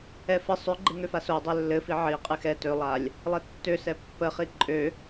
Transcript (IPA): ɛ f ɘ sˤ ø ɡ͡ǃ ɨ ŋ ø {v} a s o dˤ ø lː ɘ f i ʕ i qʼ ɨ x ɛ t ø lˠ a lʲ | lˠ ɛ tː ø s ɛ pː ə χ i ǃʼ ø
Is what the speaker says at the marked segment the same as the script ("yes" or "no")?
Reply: no